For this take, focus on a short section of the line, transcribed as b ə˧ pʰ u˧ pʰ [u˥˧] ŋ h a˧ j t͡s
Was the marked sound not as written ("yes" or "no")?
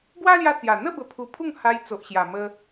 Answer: no